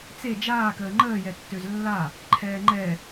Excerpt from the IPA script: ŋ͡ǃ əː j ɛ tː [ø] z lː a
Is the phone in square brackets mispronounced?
no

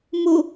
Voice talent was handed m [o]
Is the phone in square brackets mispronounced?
no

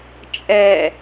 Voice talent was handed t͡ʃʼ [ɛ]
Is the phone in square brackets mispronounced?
no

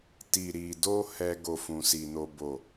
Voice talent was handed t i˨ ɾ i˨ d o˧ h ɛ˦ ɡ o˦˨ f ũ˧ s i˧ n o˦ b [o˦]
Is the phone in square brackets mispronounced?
yes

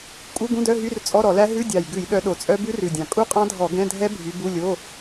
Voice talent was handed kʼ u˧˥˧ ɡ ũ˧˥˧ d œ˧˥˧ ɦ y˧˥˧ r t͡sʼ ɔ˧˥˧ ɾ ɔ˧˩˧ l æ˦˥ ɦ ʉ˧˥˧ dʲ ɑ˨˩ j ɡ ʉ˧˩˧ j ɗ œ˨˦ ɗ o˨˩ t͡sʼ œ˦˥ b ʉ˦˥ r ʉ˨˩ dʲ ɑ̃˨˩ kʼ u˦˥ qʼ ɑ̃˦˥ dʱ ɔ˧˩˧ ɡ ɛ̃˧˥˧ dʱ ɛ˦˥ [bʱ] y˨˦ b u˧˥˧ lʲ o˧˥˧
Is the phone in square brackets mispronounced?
no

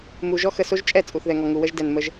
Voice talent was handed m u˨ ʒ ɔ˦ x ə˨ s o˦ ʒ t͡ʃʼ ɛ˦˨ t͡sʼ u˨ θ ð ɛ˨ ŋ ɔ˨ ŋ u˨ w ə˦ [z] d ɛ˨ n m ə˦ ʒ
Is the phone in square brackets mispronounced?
yes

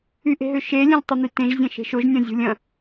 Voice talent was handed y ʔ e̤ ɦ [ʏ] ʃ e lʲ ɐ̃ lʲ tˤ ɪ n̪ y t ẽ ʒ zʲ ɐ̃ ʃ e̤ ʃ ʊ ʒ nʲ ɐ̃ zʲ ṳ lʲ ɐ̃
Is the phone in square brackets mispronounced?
no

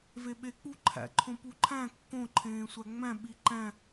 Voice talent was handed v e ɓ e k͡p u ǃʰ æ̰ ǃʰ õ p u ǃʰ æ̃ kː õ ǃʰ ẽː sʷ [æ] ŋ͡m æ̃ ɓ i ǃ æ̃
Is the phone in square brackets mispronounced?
no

